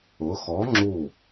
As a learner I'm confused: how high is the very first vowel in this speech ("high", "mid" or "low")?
high